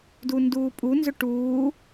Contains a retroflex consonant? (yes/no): yes